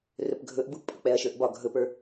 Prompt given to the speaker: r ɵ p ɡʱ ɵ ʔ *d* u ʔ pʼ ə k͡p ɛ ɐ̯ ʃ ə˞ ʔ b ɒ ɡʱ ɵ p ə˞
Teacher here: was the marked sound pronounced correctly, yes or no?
no